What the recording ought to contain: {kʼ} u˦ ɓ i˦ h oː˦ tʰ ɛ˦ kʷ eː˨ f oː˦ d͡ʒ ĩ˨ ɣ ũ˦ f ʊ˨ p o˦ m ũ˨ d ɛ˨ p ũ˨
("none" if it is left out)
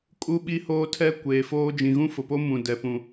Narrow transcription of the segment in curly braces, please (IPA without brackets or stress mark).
kʼ